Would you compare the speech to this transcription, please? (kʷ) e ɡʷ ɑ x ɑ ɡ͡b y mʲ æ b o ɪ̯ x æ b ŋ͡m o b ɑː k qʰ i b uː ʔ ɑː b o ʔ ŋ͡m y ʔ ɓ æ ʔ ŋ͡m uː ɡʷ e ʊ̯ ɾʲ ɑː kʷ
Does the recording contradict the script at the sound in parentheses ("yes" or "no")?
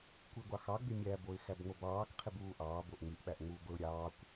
no